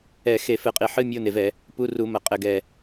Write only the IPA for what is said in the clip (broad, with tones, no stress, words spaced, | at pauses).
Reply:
ɛ˧˩˧ xe˧˩˧fɘ˧˩˧qʼi˧˩˧ħɨ˧˥˧ mʲo˧˥˧ne˨˩vɛ˧˩˧ | pu˧˥˧ru˧˩˧mɐ˨˩ qʼɘ˨˩ɡɛ˨˩